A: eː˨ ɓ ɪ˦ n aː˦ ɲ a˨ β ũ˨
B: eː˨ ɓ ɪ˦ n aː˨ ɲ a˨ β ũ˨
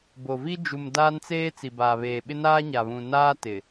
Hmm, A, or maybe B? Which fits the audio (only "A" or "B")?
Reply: A